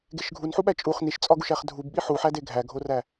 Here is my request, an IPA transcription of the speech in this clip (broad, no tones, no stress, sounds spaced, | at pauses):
ɡ e ʃ ɡʱ u n ħ u ɓ æ t͡ʃʼ u χ n i ʃ t͡sʼ ɒ ɡ u ʃ æ χ dʱ u b ɓ i ħ u ħ æ d e ɡʱ æ ɡʱ o r æ